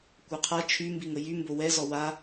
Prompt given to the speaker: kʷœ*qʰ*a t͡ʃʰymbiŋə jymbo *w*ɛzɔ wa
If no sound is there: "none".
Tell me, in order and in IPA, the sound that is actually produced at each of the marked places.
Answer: qʰ, w

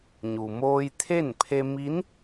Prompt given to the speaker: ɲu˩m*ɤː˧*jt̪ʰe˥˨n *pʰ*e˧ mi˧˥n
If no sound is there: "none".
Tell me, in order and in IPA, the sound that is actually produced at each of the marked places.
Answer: oː˧, pʰ

